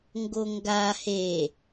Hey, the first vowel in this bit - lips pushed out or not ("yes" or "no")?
yes